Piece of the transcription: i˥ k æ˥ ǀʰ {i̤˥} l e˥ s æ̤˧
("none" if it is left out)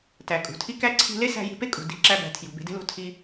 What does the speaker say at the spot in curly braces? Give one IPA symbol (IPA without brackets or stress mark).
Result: i̤˧